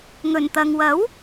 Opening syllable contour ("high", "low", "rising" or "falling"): low